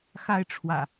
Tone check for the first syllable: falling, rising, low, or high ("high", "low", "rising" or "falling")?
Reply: high